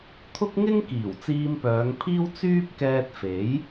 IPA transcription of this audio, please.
t̪ʰ ʊ˥ k̚ ŋ ɪ˥ ŋ k iː˨˩ w t͡s iː˧ m p œː˨˧ ŋ pʰ iː˥ w t͡s yː˥ p̚ k ɛː˧ t̚ f e˨˥ j

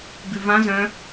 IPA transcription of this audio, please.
ɡ ʉ v ã z œ̃

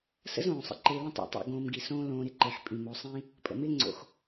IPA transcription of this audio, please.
s ə̰˥ z õː˩ sˤ ə̰˦ ǃ ɪː˨ l ə̃˥ tˤ ḭ˩ tˤ o̰˨ ɡ õː˨ m ɡ i˩ s õː˦ l õː˨ ɾ ɪ˥ ǃ ɪː˩ ħ pʼ ĩ˩ m o˨ sˤ ĩ˦ | pʼ ə̰˩ m ɪː˦ ŋ͡ǀ o̰˩ x

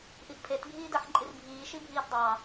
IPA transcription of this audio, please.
ʔ i ʔ pʰ e t bʱ iː d ɜ ħ ǃʼ i r bʱ iː ʃ i bʱ iː t dˤ ɑ

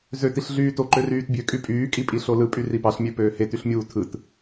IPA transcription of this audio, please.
z ø t i ɬ ɮ yː t o ǃ ø r yː t bʲ ø kʼ y pʼ yː kʼ i pʼ i ɬ o l ɯ pʼ y r i p ɑ ɬ mʲ ø p øː h e t y ɬ mʲ uː tʰ ɯ t

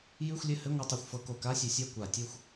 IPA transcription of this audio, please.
j ʉ˧˥˧ xʷ lʲ ɘ˦˨ h ɘ˧˥˧ ŋʷ ɘ˧˥˧ tˤ e˦˨ xʷ f ɤ˧˥˧ k o˦˨ k a˧˥˧ sʲ ʉ˧˩˧ sʲ a˦˨ kʷ a˧˩˧ tʲ ɤ˦˨ xʷ

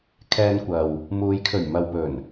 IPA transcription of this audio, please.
kʰ ɛː˧ n kʷ ɐ˨ w | m uː˨˧ j kʰ ɵ˨˩ ɥ m ɐ˨ w p ɵ˨˩ n

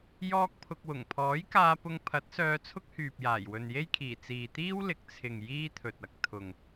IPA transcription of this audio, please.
j ɔː˥ k̚ pʰ ʊ˧ k̚ w ʊ˨˩ ŋ pʰ ɔː˨˥ j k aː˧ p ʊ˧ ŋ pʰ ɐ˨˥ t̚ s œː˧ t͡sʰ ʊ˥ k̚ h yː˨ p̚ j aː˨˩ j w ɵ˨ n j e˥ j kʰ iː˨˩ t͡s iː˨ t̪ iː˥ w l ɪ˨ k̚ t͡sʰ ɪ˨ ŋ j iː˥ t̪ʰ ɵ˨ t̚ ɐ˨ k̚ t̪ʰ ʊ˨ ŋ

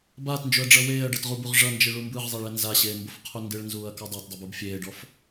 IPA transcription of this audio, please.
b aː t n d͡ʒ o ɐ̯ ɖ͡ʐ ʌ w eː ɐ̯ ɖ ʌ t ʁ u b u ʁ ʐ ʌ n d͡ʒ ɯ ɭ u m b ɯ ʁ zˤ e ɭ ɛ n z a ɕ eː m b o f qʰ u n d ɯ ɭ n z uː ɐ̯ k ɔ dˤ o t dˤ ʌ b ɯ b fʲ eː ɖ ɔ f

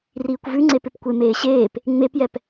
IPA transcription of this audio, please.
r iː kʷ v ʉ ŋ͡ǀ e p ɪ p kʷ e m eː ɕ eː p | ŋ͡m e p j ɛ p

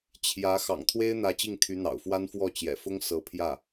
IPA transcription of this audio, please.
t͡ɕʰ j ä˧˥ x ɑ̰˨˩ ŋ t̪ʰ w e˥ ɪ̯ n̪ ä˧˥ t͡ɕ i˥˩ ŋ t̪ʰ y˧˥ n̪ ɑ̰˨˩ ʊ̯ f w a˥ n f w ɔ˥˩ t͡ɕ j ɛ̰˨˩ f ʊ˥ ŋ s ɤ˧˥ pʰ j ä˥˩

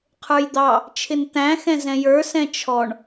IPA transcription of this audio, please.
qʰ ə˞ j d̪ ɑ | t͡ʃʰ ɪ n t̪ æ̃ x ɛ̃ z ɛ̃ j ə˞ s ɛ̃ t͡ʃʰ ɔ ɳ

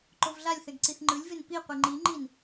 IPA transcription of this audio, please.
ǃ o v ɮ a lʲ θ ɛ ɡ ǀ i θ ŋ͡ǃ ɯ lʲ v e n p i qʷ i ŋ͡ǃ i ŋ͡ǃ i n

